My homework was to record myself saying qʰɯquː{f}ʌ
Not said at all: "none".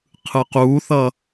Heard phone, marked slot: θ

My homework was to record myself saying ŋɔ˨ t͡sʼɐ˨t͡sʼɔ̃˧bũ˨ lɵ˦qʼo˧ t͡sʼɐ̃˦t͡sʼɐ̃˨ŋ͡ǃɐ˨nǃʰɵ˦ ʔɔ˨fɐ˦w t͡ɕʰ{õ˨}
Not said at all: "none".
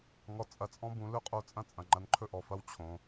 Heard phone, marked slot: õ˨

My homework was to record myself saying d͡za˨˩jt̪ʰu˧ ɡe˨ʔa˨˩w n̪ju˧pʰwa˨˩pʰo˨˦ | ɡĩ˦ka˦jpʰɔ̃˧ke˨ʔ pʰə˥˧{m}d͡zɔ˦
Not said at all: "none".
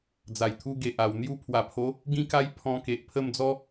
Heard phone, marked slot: m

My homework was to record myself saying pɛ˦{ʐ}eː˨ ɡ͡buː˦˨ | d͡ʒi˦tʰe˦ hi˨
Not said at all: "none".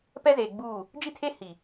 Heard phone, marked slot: z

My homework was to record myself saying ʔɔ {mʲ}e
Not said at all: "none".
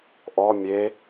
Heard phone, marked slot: mʲ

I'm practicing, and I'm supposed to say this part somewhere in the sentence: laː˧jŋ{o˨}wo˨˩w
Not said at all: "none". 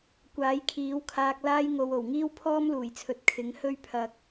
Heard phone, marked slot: o˨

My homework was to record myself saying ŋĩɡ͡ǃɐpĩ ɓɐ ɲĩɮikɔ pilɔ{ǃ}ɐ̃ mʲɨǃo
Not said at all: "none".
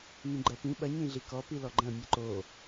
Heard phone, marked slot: ɡ͡ǃ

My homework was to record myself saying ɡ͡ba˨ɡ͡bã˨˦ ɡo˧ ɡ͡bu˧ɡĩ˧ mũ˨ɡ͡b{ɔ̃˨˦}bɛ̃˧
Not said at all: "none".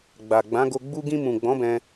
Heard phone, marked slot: ɔ̃˨˦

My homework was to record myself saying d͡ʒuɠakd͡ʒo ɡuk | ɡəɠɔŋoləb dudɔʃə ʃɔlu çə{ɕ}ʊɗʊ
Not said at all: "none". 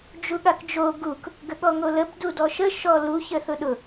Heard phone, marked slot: θ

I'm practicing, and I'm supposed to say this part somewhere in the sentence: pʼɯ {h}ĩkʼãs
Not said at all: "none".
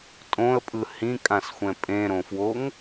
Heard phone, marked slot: h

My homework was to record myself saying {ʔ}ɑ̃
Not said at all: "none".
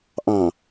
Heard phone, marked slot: ʔ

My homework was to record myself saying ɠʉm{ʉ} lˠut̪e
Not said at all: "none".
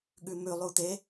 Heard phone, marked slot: ʉ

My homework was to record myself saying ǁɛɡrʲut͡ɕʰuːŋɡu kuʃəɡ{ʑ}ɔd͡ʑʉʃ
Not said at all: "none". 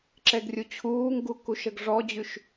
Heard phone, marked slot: ʐ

